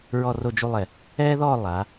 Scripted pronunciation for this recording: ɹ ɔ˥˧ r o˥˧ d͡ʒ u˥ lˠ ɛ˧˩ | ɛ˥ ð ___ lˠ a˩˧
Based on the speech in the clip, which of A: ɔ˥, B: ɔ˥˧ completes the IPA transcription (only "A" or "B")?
B